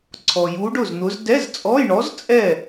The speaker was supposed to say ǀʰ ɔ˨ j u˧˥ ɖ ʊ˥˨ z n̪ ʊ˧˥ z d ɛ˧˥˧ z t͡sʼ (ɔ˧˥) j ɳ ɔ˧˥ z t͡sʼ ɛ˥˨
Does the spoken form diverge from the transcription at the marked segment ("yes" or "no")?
yes